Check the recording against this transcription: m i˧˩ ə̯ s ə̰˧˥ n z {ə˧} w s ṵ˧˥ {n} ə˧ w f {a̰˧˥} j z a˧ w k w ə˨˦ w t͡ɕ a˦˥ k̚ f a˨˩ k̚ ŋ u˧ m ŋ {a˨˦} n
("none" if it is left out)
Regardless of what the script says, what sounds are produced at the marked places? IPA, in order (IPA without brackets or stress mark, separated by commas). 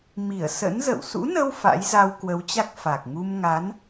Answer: ə̰˧˨, n, a̰˧˥, a˨˦